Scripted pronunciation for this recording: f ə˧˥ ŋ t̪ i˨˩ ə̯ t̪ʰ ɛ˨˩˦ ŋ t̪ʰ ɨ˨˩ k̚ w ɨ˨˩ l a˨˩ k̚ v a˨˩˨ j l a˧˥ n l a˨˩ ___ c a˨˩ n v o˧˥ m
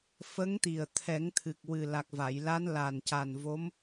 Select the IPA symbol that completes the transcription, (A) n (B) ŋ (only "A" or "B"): A